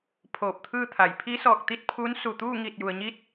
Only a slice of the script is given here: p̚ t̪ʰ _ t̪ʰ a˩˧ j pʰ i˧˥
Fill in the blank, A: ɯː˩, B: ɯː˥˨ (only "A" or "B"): B